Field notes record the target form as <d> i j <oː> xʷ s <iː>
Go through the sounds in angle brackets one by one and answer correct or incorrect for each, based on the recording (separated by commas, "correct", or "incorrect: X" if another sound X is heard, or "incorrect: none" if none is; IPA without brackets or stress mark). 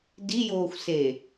correct, correct, incorrect: eː